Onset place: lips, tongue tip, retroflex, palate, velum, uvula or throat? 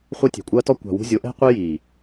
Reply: uvula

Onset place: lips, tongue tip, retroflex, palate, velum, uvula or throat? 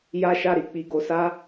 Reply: palate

